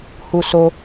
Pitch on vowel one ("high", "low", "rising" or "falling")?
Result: high